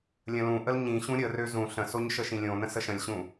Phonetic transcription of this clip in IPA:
lʲ ə̃ l ũ ʔ ə l ɲ ĩ ɕ ũ ɾʲ ə r ø z ũ ɬ ə̃ s o ɲ ʃ ə ʃ ĩ lʲ õ n ə̃ s ə ʃ ə̃ lʲ ɕ ũ

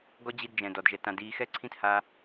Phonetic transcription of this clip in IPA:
ɡ ɔ˦ d͡ʑ i˧ d d͡ʒ ɛ̃˨ d ɔ˨ d ʒ ɛ˧ t ã˧ d iː˦ x ɛ˦ ǀʰ ĩ˦ t h a˦

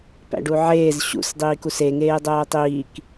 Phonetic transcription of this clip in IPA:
p æ̰ ɖ u ʕ eː z ɕ ṵ s dˤ iː k u s e ŋ eː dˤ oː tˤ iː k

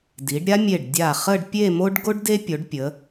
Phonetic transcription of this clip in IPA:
d i˩˧ ɖ ɾʲ a˥ mʲ e˧˩ ɖ dʲ a˧˩ χ ə˥˧ ɖ pʲ e˥˧ m o˥ ɖ ɡ o˥ ɖ d e˥ pʲ o˩˧ ɖ pʲ ə˩˧

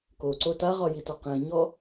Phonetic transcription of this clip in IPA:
k o ǀ o t a ʁ ɒ j i t ɒ q ẽ ɲ ɔ

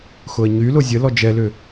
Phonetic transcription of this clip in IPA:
x ʊ ə̯ ɲ y l ʊ zʲ ə l ɔ d͡ʒ ɛ l ʏ

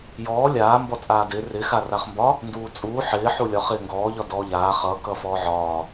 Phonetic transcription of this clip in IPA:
j ɔː lʲ aː m b ɔ t͡sʼ aː d ɪː r ɪ x a r a χ m b ɒ | n d uː t͡sʼ uː ħ ɪː ħ u lʲ ɒ χ ɪː ŋ ɡ ɔː ʎ ɒ d ɔː ʎ aː χ ʌː k ʌː f ɔː ʕ ɒː

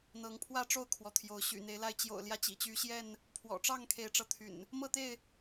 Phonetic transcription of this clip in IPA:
n̪ ɤ˨˦ ŋ pʰ w ä˥˨ ʈ͡ʂ o˥˨ ʊ̯ kʰ w ɔ˨˦ t̪ʰ j o˨˦ ʊ̯ ɕ y̰˨˩ n̪ e˨˦ ɪ̯ l a˥˨ ɪ̯ t͡ɕ j o̰˨˩ ʊ̯ l j ä˦ t͡ɕ ḭ˨˩ t͡ɕ y˨˦ ɕ j ɛ˥˨ n | pʰ w ɔ̰˨˩ ʈ͡ʂ ɑ˥˨ ŋ kʰ e˨˦ ɪ̯ ʈ͡ʂ ɤ˨˦ t̪ʰ y̰˨˩ n | m ɤ˥˨ t̪ e˥˨ ɪ̯

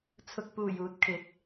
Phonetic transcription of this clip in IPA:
t͡sʰ ʊ˨ k̚ p uː˨˩ j uː˨ t̚ kʰ ɪ˨˥ k̚

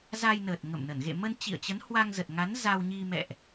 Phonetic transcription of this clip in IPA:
z a˧ j n əː˨˩ t̚ ŋ ə̰˧˨ m n ə˧˩ n ɣ ḛ˧˨ m ə˧ n t͡ɕ ḭ˧˨ ə̯ t͡ɕ ə˨˦ n h w a˧ ŋ z ə˨˩ t̚ ŋ a˨˦ n z a˧ w ɲ i˧ m ɛ̰˧˨ ʔ

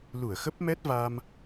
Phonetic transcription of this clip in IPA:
l u˧˩ ə̯ x ə˦˥ p̚ m ɛ˦˥ t̚ v a˧ m

